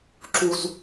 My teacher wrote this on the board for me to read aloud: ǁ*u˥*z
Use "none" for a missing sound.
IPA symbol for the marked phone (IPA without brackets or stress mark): u˥